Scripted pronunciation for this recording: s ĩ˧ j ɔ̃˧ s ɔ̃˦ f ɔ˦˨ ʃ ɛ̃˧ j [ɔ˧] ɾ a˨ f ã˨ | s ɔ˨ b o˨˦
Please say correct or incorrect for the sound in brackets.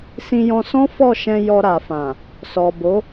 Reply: correct